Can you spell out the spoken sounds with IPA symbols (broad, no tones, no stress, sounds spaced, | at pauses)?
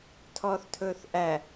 tʰ ɔː θ tʰ ɵː θ ʔ æ